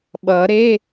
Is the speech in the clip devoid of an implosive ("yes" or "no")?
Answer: no